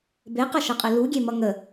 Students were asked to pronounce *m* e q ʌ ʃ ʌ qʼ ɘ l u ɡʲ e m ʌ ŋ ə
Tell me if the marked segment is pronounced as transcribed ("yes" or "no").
no